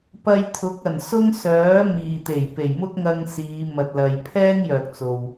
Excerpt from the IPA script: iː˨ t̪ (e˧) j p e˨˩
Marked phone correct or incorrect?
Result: incorrect